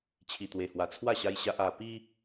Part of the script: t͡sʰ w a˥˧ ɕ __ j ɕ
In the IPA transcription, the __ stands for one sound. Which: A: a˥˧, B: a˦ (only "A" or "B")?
B